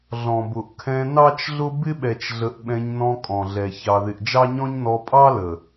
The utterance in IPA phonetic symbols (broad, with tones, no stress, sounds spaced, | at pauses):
ɮ ɔ̃˨ b ʊ˨ ʔ kʰ ɛ̃˧ n ɑ˦ t͡ʃ ɮ ʊ˦ b ɪ˦ ɓ ɛ˨ t͡ʃ ɮ ə˨ ʔ ɓ ɛ̃˧ ɲ n ɔ̃˧ kʼ ɔ̃˨ ɮ ɛ˨ ç ɑ˨ ð ɪ˨ ʔ d͡ʒ ɑ˦ ɲ ɔ̃˦ ɲ n ɔ˧ pʼ ɑ˦ l ə˨